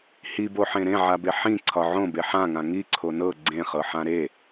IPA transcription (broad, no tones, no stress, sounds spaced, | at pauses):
h i b o ħ ẽ ɾ ẽ ʕ a b e ħ ĩ ǀʰ ɒ ʕ õ b e ħ ã ŋ ã ŋ i ǀʰ o n ɤ ɡ͡ǀ ẽ χ ɤ ħ ã ɾ e